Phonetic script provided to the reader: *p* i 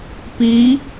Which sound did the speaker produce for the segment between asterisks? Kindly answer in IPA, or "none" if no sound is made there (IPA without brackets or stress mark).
p